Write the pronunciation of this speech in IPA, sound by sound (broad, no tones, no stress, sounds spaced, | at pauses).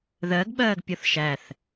ð ɜ ɡ ɓ ɜː ɡ pʲ ɔ θ ʃ æ θ